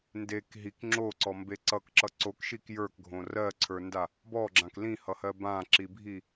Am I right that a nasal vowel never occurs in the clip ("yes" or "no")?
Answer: no